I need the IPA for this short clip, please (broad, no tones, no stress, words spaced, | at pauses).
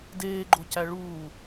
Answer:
deːɡ͡ǃocæ ɭuː